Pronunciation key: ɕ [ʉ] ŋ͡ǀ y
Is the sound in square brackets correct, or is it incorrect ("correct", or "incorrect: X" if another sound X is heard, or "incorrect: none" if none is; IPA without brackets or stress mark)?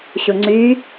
incorrect: ʊ